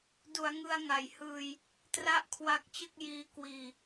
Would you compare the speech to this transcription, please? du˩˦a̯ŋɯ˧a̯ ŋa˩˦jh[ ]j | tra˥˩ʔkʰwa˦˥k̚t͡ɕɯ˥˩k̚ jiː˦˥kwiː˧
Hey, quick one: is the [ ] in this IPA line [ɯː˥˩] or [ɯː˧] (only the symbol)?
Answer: ɯː˧